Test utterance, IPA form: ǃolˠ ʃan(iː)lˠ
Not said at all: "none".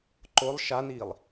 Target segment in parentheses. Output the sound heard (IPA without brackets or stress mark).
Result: iː